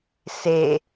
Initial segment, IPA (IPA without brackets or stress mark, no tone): s